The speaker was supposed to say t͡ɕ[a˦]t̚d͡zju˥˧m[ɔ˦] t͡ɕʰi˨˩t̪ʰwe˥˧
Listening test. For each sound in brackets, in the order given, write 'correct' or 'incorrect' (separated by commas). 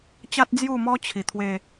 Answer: correct, correct